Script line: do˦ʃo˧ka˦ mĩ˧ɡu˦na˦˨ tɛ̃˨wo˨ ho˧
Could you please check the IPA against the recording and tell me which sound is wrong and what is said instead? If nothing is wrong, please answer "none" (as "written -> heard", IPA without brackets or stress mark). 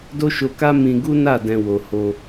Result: t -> d